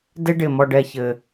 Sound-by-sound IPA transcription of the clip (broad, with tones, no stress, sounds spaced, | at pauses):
d e˦ ɖ ɪː˧ m ɔ˧ ɖ ɛ˧ ç ɘː˧